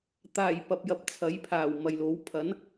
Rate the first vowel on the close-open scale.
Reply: open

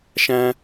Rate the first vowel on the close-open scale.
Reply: open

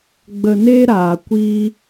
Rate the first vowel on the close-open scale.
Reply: mid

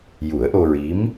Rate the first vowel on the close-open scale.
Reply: close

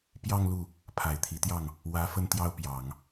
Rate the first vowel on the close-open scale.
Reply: open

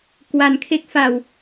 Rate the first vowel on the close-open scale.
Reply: open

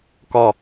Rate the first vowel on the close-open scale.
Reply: open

